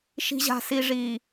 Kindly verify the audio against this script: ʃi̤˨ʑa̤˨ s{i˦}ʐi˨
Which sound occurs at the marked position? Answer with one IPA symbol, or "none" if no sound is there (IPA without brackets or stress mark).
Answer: i˨